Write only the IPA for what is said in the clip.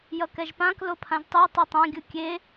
jʌkɛʒpãk lopʰãʒtˤɯj tˤitˤã ɡʲɯkʲe

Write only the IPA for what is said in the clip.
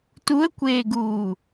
tuə̯kʷeːɡuː

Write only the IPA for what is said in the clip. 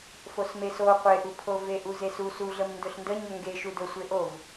fosmeso qʷeʔupʰo veʔuzesu suɮəmndɵɬ ndəɲɵ ŋɡe ʃudɵ sʷeʔov

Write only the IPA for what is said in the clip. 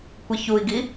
kʷiçui̯ɡi

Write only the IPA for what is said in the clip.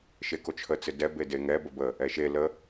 ʃekot͡ʃʰə t͡sɪdɛ bedeŋɛ bəbə | ɛʃe lə

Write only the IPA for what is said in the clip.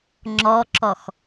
ŋ͡ǁɔǁɔx

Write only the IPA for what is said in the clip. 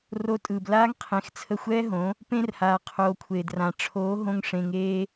ro˨˦tʼɯː˨b laː˦ŋqʰẽ˨˦x t͡sʰə˧xʷɛː˦ɦõ˨˦ | pẽ˧rhaː˨qʰoː˨kʷʰeː˨d rã˨ʈ͡ʂʰoː˨˦ ɦõ˧ŋ ʂẽ˧ŋeː˦

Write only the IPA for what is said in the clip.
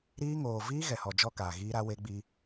ɾiː˦ ŋoː˨ viː˦ ɣɛ˨hɔ˨ d͡ʒɔ˦kaː˨ ɣiː˦ɾa˦we˦ɡ͡bi˦

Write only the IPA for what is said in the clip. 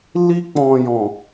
li˧k͡pɔ̃˨jɔ̃˨

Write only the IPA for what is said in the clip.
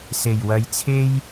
se˨˩jwɐ˨˧jt͡sʰe˥j

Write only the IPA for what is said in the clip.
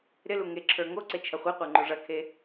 ɾɪlu ŋeǁʰə˞ ŋoǀe t͡ʃʰɐχʷeqʷə˞ ŋ͡ǃoʐɐkʰe

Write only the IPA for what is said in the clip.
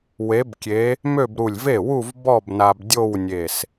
we˧˥bkʲe˧˥ | mø˥˧bɾu˧˩lʲ ve˥˩wu˥˧v bɔ˥˧bna˧b dʲo˥˧wnʲe˧˩s

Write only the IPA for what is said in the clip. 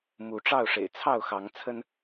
mu˨˦ ʈ͡ʂɑ˥˨ʊ̯ʂḛ˨˩ɪ̯ t͡sʰɑ˥˨ʊ̯xɑ˨˦ŋt͡sʰə˦n

